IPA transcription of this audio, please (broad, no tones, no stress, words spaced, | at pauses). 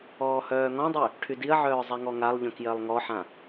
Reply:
ɔːhœːŋɔ̃dˤy | ʈʰydiɐ̯ʕœː zˤɛŋɔŋalˠʎœ̃k jɜlˠŋɔħã